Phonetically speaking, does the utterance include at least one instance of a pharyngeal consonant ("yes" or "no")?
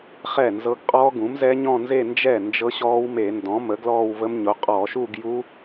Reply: no